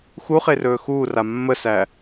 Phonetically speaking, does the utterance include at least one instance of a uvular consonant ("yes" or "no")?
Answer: yes